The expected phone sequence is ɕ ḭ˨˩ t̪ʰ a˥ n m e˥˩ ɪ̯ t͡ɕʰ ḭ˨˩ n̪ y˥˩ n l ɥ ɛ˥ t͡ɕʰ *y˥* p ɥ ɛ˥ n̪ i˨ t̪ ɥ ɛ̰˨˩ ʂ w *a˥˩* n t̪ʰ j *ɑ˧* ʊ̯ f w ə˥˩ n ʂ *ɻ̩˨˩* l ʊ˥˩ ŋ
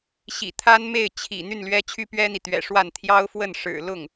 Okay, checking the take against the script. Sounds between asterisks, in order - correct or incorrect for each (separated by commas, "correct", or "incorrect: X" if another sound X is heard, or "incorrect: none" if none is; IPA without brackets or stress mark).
correct, correct, incorrect: ɑ˥, correct